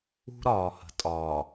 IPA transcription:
ṳ˦ɾɒː˨hə̤˨ tʼɒː˨

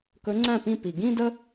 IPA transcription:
kɵ˨˥ŋ͡ǀæ̃˥˩pĩ˥˩ pi˩ɡĩ˥˧ də˥

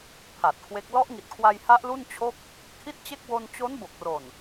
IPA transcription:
pʰa˨˩t̚kʰwe˦˥k̚ lɔ˦˥ʔŋi˨˩t̚kʰwa˧jha˦˥ʔ lu˥˩nt͡ɕʰo˥˩k̚ | kʰi˥˩t̚t͡ɕe˥˩k̚ wo˧nt͡ɕo˦˥nbo˨˩k̚ro˨˩n

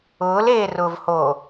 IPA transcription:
ʊːleːrʊːvhoː

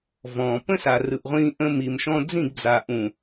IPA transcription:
vɔ̃ː˨ pə̃˦sa˨rɯ˨ʔʁʷĩː˧ ʔə̃˧mi˨mʃɔ̃˧ d͡zĩ˦˨ɡd͡za˨ ʔũ˨

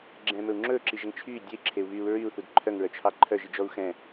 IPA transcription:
ɡ͡ǁɛ̃mɵu̯ ŋ͡ǁɵːǁiʒɛŋ t͡ʃʰyː dʲœi̯ǁʰeu̯βyːu̯ ɹyu̯θud ǃʰœŋɹœt͡ʃʰɑ ǃʰœʒid͡ʒɔu̯ xɛ̃

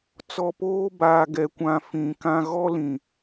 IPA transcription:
t͡sɔ˨poː˦baː˨ ɡɛ˨kʷã˨ fĩ˨kã˦ ɣɔ˦lĩ˨

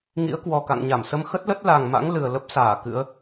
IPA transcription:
ŋḭ˧˥ə̯kwɔ˨˩ka̰˧˨ŋ ɲa˧˩msə˧m xə˦˥t̚lə˦˥t̚ la˨˩ŋma̰˧˥ŋ lɨ˨˩ə̯lə˦˥p̚saː˧˩kɨ̰˧˥ə̯

